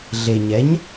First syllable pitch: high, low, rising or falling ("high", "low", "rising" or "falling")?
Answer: low